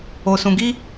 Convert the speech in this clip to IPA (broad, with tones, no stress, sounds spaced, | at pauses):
o˧ s ũ˧ ɡ i˦